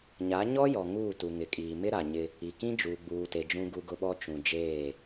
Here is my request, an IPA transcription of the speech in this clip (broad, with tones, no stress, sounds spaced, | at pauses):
ɲ a˨˦ ɲ ɔ˦ j ɔ˨ ŋ uː˦˨ t u˨ ŋ ɪ˨ kʼ iː˨ m ɪ˦ ɾ a˨ ɲ ɪ˦ | i˨ k ĩ˦ d͡ʒ uː˨ ɡ͡b uː˨ t e˨ d͡ʒ ũ˦ ɡ u˦ ɡ ʊ˦ ɓ ɔ˦ t͡ʃ ũ˨ d͡ʒ eː˦˨